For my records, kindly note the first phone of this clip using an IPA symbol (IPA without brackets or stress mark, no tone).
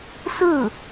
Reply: s